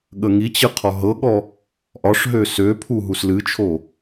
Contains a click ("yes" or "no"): no